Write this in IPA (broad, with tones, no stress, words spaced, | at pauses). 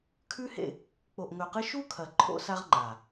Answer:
kʰʉ˦hḛ˦˨ | k͡po˨ʔŋɵ˨qɨ˧ʃu˦ kʰɐ˨ ǃʰo̰˦sa˦ʁŋ͡ǃa˨